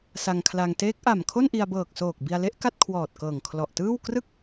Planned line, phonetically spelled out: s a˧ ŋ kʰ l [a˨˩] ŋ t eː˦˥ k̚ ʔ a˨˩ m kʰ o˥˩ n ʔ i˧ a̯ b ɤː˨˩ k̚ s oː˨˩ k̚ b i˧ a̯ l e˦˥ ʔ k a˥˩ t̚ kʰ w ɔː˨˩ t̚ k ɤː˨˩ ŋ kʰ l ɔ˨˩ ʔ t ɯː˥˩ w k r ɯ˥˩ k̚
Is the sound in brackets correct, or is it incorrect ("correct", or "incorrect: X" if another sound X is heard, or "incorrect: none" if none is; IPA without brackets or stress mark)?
incorrect: a˧